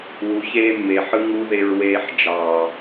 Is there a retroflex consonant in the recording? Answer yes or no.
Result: no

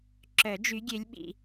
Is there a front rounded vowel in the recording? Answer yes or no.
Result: yes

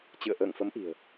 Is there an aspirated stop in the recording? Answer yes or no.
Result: no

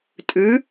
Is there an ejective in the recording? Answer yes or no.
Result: yes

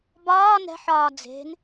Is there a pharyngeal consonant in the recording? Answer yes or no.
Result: yes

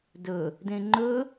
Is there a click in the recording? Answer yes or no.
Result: yes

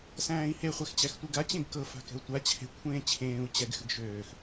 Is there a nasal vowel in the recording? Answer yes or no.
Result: yes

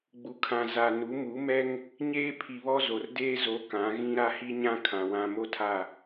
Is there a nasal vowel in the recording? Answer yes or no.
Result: yes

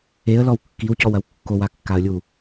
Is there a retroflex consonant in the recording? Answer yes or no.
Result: no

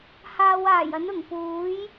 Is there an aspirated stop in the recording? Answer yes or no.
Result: no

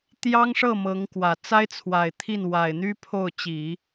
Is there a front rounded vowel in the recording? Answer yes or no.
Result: yes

